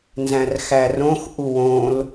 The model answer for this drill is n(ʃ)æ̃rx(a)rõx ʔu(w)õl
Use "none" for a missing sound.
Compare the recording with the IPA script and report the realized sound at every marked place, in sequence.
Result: z, æ, w

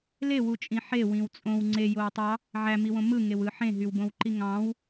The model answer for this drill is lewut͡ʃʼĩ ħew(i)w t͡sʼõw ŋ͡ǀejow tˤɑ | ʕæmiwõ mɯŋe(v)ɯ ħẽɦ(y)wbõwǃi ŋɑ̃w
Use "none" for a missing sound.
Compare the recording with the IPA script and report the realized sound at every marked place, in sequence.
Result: ĩ, w, y

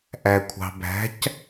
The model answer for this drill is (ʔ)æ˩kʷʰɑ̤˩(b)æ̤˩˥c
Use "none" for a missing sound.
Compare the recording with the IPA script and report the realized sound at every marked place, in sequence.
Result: ʔ, b

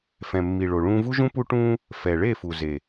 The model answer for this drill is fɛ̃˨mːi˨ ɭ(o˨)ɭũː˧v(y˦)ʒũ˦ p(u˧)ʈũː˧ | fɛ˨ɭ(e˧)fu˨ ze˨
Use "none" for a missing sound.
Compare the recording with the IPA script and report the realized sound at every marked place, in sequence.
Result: o˨, u˦, u˧, e˦˨

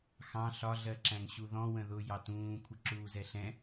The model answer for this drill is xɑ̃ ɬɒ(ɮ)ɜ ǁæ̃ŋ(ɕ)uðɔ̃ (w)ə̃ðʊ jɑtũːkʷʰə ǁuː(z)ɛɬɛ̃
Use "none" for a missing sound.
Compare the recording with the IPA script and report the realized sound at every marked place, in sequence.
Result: ɮ, ɕ, w, z

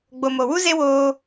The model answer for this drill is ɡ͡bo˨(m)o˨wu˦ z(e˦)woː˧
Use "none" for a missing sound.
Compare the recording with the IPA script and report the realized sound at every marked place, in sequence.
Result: m, e˦

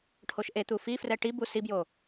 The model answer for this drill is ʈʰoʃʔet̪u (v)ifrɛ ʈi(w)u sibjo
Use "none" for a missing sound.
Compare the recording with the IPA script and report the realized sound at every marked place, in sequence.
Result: f, b

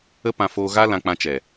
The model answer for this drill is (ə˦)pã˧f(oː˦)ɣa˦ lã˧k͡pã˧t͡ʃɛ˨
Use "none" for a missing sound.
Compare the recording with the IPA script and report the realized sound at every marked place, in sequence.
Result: ə˦, oː˧

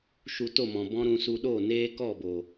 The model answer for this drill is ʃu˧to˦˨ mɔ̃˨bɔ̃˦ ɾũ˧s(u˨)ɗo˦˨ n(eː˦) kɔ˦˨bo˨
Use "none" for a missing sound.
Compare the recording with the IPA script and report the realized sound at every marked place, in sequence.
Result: u˧, eː˦

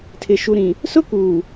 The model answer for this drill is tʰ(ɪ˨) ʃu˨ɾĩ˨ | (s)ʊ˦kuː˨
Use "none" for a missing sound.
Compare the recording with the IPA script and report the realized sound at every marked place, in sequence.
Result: ɪ˨, s

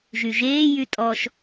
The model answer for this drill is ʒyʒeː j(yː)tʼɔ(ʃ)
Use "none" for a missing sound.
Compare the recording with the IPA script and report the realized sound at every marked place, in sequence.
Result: y, ʃ

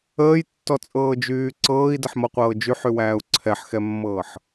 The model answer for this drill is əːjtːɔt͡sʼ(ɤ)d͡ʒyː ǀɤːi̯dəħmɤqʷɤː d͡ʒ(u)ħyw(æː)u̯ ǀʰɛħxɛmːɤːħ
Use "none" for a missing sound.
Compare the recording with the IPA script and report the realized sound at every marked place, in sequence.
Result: ɤː, y, æː

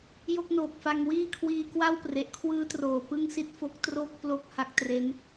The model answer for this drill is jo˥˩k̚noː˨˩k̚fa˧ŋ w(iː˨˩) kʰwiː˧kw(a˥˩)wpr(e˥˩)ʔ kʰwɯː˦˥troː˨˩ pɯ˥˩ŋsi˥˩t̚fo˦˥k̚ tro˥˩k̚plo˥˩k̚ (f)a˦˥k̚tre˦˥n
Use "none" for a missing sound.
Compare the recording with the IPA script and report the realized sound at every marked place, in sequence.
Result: iː˥˩, a˥˩, e˨˩, h

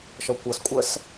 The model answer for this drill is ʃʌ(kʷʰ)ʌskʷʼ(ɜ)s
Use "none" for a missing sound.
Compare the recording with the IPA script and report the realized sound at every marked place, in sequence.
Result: kʷ, ɜ

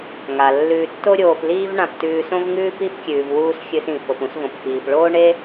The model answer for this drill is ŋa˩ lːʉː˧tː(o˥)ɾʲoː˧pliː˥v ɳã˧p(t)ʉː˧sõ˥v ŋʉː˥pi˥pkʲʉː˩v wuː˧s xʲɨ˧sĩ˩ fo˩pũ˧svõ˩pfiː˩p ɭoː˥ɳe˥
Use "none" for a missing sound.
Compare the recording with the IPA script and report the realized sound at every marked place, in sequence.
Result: o˥, t

